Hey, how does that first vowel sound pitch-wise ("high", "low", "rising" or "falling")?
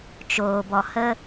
low